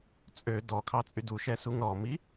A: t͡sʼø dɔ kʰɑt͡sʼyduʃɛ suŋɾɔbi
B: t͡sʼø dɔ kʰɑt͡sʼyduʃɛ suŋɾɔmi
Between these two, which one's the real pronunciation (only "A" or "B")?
B